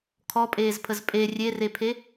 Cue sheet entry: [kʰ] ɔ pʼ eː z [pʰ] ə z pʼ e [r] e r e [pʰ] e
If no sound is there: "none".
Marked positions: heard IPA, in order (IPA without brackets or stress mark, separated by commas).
kʰ, pʰ, rʲ, pʰ